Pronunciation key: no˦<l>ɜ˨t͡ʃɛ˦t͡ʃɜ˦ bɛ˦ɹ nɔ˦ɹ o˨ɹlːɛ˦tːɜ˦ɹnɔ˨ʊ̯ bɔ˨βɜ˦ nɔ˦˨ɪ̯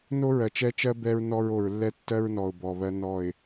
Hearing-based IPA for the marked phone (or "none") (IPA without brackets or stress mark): ɹ